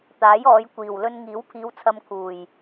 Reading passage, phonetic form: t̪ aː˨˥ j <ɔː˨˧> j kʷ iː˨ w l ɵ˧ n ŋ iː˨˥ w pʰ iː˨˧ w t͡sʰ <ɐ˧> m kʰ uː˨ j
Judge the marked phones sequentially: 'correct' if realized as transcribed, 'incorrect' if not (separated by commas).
correct, correct